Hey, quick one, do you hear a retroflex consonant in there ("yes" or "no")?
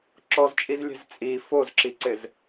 no